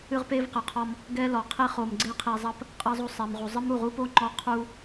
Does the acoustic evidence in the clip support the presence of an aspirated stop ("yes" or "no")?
yes